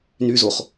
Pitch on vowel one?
low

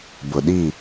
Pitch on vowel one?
low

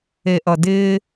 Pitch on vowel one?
low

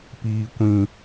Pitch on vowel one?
low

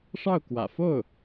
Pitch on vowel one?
falling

